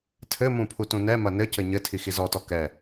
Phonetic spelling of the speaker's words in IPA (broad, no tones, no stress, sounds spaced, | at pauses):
tʰ ɘ m ũ pʰ u t ũ n ɛ m ɐ n ɘ c ɘ ɲ ɘ tʰ i x i z ɔ t ɔ k ɛ